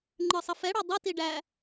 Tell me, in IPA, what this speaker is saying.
ŋ͡ǃ ə˞ sˤ ə f ɛ ɽ ɑ dˤ ʌ t i ɖ æ

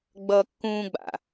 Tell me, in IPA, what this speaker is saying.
ɡ͡b ʌː kː ũː ɡ͡b a̰

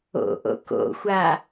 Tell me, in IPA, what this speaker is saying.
o̰ ʔ o̰ k o̰ xʷ a

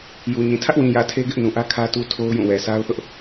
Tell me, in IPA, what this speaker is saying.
j u˨ ɲ ĩ˨ tʰ ä˦ ʔ w ĩ˨ j ä˨ tʰ e˦ ɡ ɪ˦ ʔ n ũ˨ ʔ ä˦ kʰ ä˦ t u˦ tʰ o˦ ʊ̯ j ũ˦˨ w ɛ˨ sʰ a˦ ʊ̯ θ ʊ˦ ʔ

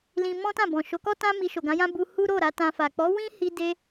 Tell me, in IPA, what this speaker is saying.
l ĩ˧ m ɔ̃˦ t ã˦˨ b ɔ̃˨ ʃ o˨˦ k ɔ˦ t ã˦ m i˧ ʃ o˨ ɡ ã˨˦ j ã˦ b u˧ h u˦ ɾ o˦˨ ɾ a˨˦ t ã˧ f a˨ k͡p ɔ˨˦ w ĩ˦ h i˧ d e˦

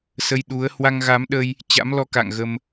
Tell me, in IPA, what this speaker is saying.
s ə˧ j ɗ u˨˦ ə̯ h w a˧ ŋ ɣ a˨˦ m ɗ ə˧ j | t͡ɕ a̰˧˥ m l ɔ˧ k a̰˧˨ ŋ ɣ ə˧ m

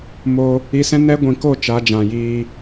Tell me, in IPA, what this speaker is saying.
m o˧ | i˧ s ɛ̃˦ n ɛ˦ ɡʷ ĩ˨ k o˦˨ t͡ʃ a˨˦ d͡ʒ ã˨ j iː˧

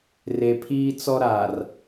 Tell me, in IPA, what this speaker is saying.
r e˨ pʰ iː˦ t͡s ɔ˦ ɾ a˨ r

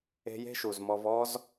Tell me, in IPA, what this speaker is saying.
e̤˧ j e̤˦ ʃ u˨ z m ɔ˧ v ɔ˦ z

